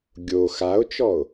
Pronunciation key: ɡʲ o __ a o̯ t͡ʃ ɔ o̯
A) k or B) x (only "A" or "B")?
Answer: B